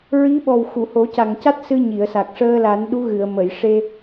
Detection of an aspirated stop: absent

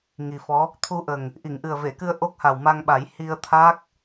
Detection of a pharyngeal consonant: absent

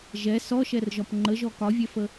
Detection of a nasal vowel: absent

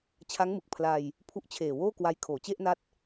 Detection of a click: absent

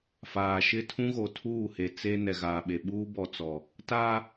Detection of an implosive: present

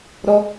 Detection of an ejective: absent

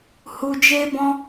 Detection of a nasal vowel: present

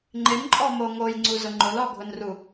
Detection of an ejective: present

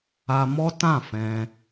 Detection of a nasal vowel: present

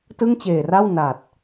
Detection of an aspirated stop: absent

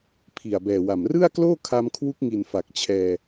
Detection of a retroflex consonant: absent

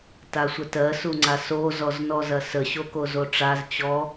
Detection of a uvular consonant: absent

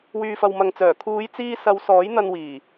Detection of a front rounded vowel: present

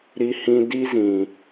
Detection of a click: absent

